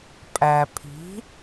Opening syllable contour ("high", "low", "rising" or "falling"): low